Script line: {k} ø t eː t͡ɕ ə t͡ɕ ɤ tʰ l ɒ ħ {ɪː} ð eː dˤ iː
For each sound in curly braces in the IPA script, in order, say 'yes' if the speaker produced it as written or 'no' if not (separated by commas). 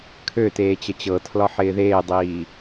no, yes